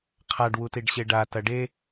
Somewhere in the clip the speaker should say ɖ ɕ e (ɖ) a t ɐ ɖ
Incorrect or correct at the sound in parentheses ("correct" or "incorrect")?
correct